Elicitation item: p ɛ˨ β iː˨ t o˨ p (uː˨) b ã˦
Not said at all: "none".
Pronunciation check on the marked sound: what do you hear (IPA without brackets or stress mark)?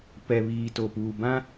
uː˨